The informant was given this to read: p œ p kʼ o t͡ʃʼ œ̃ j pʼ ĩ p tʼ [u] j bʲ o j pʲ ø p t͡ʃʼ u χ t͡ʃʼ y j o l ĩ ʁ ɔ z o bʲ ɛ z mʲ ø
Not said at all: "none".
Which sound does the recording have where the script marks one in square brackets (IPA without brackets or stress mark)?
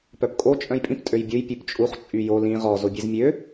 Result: ø